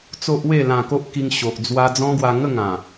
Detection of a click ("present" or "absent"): absent